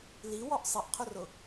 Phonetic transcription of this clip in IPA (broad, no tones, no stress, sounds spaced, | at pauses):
l i w ɔ ʔ sˤ ɪ ʔ qʰ ʊ r ʊ